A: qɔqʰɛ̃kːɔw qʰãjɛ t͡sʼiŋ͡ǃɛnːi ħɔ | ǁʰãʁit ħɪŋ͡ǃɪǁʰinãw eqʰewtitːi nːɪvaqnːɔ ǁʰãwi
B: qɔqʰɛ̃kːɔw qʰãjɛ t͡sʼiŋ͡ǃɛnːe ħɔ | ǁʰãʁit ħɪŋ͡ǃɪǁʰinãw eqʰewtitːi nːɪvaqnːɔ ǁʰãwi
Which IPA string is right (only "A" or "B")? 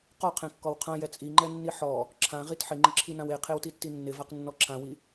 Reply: A